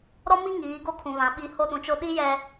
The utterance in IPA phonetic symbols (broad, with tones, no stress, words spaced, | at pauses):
ɾɔ˦mi˦ ŋiː˨˦ɡo˦kʰũ˨βã˨˦ ɓi˨ ho˦ɗũ˨t͡ʃo˦ ɗi˦jɛ˨